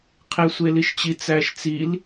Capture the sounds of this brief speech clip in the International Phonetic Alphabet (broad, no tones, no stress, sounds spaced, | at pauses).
qʰ e sʷ e l i ʃ t͡ɕ i t͡s æ ʃ t͡s i l